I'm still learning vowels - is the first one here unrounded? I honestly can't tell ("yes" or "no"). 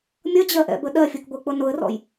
yes